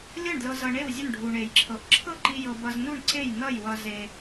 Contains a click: yes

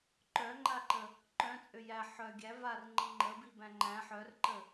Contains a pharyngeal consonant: yes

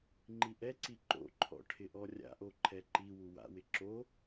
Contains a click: yes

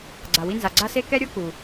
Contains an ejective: no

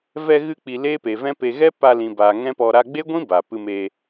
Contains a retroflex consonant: no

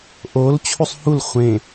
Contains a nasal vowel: yes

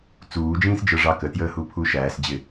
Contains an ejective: no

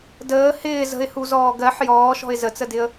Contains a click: no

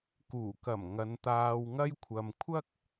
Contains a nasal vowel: no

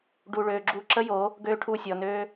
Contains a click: yes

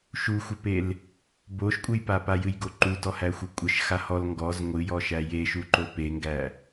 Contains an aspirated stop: no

